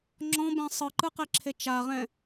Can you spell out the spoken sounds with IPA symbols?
ŋ͡ǁ ɔ̃ b ɛ̃ sˤ ɯ ǃ ɯ q e ǁʰ e t͡ʃ a ʁ ɛ̃

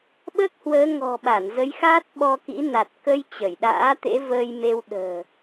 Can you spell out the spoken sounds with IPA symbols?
ɓ əː˦˥ k̚ h w əː˨˦ ŋ ɔ̤˨˩ ɓ a˧˩ n z ə˨˦ j x aː˦˥ t̚ ɓ ɔ˧ k ḭ˧˥ n a˨˩ t̚ k ə˧ j t͡ɕ ə˧˩ j ɗ a̰ː˧˥ t̪ ḛ˧˥ v əː˧ j m e˧ w ɗ ə̤ː˨˩

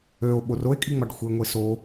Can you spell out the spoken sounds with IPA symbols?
ø o̯ ɓ o r o e̯ kʼ i ŋ͡m ɑ ɖ xʷ e ŋʷ e s o

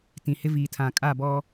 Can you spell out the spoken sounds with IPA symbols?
t ĩ˨ h ɪ˦ v iː˨ tʰ ã˨ kʼ a˦˨ b ɔ˦

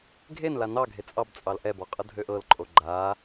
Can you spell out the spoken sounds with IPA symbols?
ɡʱ e n l a n ɑ ɡʱ e t͡sʼ ɑ b t͡sʼ ɑ l ʔ ɛ b ɔ qʼ ɤ dʱ ø ʔ ɤ l ǃʼ o ɡ͡ǃ a

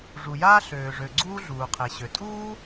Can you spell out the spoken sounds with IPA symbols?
ʐ u˩ j aː˥ ɬ øː˩ ʐ ø˩ ɡ͡ǀ uː˥ ɮ uː˩ qʰ e˩ ɕ ø˩ tʼ uː˥

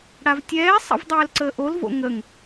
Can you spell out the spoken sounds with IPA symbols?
ɽ a v tʲ ɛː sˤ ə̰ v dˤ ɛː l ǀ əː ʔ o l v o̰ ŋ ə ŋ

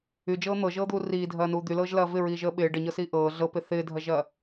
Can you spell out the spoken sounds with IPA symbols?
y d͡ʒ ɤː n̪ ɤ ʒ ɤː d̪ uː r iː dʱ ɐː n uː d̪ y l ɤː ʒ l ɐː v ɪ ɹ iː ʒ əː ɓ ɪː ɖ ə ɲ ɤ s iː ʔ ɤː ɮ ɤ p ɪ θ ɪː dʱ ɐ ʒ ɐ

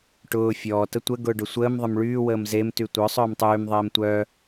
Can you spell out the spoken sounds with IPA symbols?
ʈ ʊː fʲ ɔː t ə tʷ ə ɡ ʊː ɖ ʊ sʷ əː m ðˤ ə m ɭ yː w əː m z e m t y tʷ œ sˤ œː m tˤ yː m ðˤ eː m tʷ œː

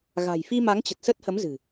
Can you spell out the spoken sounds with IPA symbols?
ɣ a̤˨˩ j f i˧ m a˨˦ ŋ t͡ɕ ə˨˩ t̚ s ə˦˥ t̚ h ə˨˦ m z ɨ̤˨˩

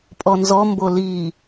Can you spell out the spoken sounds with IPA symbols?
pʼ ɔ n z ɔ m b o l i

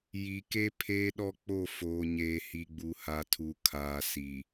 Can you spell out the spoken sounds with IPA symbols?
j i˨ k e˦ pʰ eː˦ ɗ ɔ˦ k͡p o˦˨ f oː˨ ɲ eː˨ h i˨ ɡ͡b u˨ h a˨ tʰ u˨ kʰ aː˨ s i˨

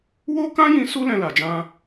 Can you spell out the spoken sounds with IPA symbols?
w o˦ k ã˦ j ĩ˧ s u˦ l ɛ̃˧ l a˨ d͡ʒ ã˧

